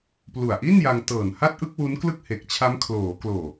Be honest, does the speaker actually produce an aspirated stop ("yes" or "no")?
yes